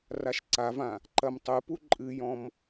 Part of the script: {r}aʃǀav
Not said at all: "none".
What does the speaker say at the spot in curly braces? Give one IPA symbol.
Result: r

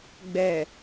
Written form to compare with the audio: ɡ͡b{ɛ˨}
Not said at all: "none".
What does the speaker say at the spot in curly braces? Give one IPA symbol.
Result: ɛ˨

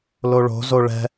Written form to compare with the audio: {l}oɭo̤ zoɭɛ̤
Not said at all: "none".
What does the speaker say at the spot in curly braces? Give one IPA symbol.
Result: l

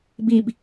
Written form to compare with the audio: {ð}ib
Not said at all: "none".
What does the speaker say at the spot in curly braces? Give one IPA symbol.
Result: b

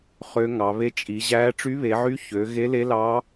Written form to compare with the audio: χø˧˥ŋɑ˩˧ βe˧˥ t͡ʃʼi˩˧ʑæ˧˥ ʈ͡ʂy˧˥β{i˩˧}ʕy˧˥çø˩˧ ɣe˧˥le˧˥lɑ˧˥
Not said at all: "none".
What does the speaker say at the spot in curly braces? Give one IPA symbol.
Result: e˩˧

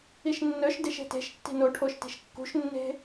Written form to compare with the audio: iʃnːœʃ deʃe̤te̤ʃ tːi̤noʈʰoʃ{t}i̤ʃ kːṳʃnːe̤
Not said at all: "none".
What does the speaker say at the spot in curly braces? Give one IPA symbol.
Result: t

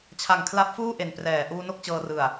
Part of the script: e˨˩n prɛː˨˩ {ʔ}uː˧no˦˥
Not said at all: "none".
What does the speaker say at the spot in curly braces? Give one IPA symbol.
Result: ʔ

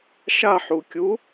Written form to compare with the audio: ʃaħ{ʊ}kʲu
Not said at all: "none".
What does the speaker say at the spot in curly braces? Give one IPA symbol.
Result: u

